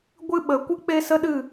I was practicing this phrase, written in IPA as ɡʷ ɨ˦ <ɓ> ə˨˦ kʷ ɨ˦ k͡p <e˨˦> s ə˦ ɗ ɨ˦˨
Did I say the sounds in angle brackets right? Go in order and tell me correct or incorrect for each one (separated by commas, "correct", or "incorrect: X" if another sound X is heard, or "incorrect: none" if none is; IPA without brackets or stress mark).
correct, incorrect: e˦